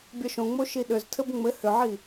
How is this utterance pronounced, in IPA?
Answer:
bʲ ɒ ʃ õ ŋ͡m o ʃ i ɗ ʏ z tʰ ɘ b ŋ͡m ɘ h ʏ ʕ i

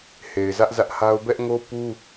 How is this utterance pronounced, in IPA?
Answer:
h e˨ ɪ̯ z ä˦ ʔ z ä˦ ʔ h a˦ ʊ̯ b ɛ˦ ʔ ŋ o˦ p u˦

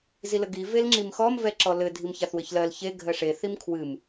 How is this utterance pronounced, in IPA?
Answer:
z i l ə ɡ i v e l ŋ͡ǁ i m x ɔ m v ɛ ǁ ɔ l ɘ dʱ i m ç a θ w ɘ ç l ɜ l ç e ɡʱ ɜ ʂ e θ i m kʰ w ɨ m

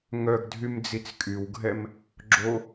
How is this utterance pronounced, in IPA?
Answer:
ŋ œ ɡ dʱ y m d͡z i t͡s kʼ y w ɡʱ ɛ m | ɡ͡ǁ o

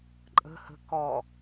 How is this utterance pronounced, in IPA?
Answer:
ǃʼ ə̤ h ə̤ k ɔ

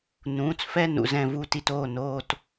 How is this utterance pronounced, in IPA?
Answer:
n ũː˩˧˩ t͡s f ɛ˥˧ n ṵ˩˧˩ z ɛ̃˥˧ v u˥˧ t i˥˧ t oː˩˧˩ n oː˥˧ t

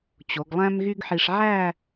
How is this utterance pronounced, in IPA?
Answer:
t͡ɕ o˩˧ ɡ lˠ æ̃˥ m ɣ y˥ ɡ ħ i˧ ʂ ʕ æ˥˧

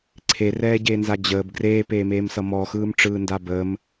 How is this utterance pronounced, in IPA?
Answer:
ǀʰ e r ɛː ɟ eː n z a d͡ʑ əː b ɡ r eː p eː m eː m s ʌ m ɔ x ɯː m ʈ͡ʂ ɯː n d a b əː m

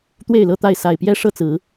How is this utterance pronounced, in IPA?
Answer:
t̪ w e˥˨ ɪ̯ l ɤ˥˨ t̪ a˥˨ ɪ̯ s a˨˩ ɪ̯ p j ɛ˦ ʂ ɤ˥˨ t͡s ɹ̩˨˦

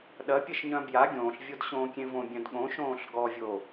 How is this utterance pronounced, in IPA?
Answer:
ɗ ɐ pʲ ɐ ʃ ɲ œ̃ b j a ɡʲ õː ɬ vʲ o d ɕ õː kʲ ẽ v õ bʲ œ̃ d ɠ õ ʃ õː ɬ ɡ ɔ vʲ o

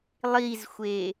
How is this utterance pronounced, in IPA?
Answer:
lˠ i z xʷ e

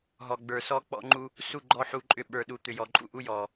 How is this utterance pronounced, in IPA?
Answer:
ɦ ɔ˨ ɡ͡b ə˞˨ s ɔ˦ k͡p ɔ̰˦ ŋ͡ǃ u˦ | s u˦˨ ɡ͡ǃ ɔ˦ ħ u˦ ǃʼ ʏ˦ ɓ ə˞˨ ɗ u˨ t̪ ʏ˨ j ɔ˨ ǃʼ ṵ˦˨ ʔ u˦ j ɔ˨

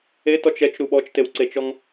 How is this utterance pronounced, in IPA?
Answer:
e t ɔ t͡ʃ ɛ t͡ʃ ɾ u ɓ ɔ t͡ʃ t e w ǀ e t͡ʃ ɔ ŋ

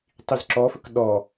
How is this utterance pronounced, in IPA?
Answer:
tˤ i z ǁ ɔ f ə k ɗ ɔ

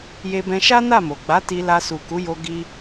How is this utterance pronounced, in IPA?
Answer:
j e˧ b ɛ̃˧ ʃ a˦ n a˦˨ m o˨ ɡ͡b a˨˦ t i˧ l a˧ s u˨ k u˨˦ j o˧ ɡ i˦

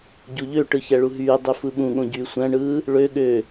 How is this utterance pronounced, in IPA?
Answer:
ɟ u ʎ ø ʈ ɯ ç æ ɭ u ɦ yː dˤ y f ɯ ɓ ũ ɠ õ ɟ yː sʷ æ̃ ɳ ɯː | ɭ ø ɠ ø

